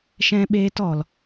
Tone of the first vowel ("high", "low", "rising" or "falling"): high